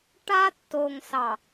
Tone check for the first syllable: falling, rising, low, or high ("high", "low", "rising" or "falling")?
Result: high